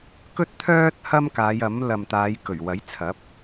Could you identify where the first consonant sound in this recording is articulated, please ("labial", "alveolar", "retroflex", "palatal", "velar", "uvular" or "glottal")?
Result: velar